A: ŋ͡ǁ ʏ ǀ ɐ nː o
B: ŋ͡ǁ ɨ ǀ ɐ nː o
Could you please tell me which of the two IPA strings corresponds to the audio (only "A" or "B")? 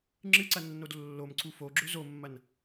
B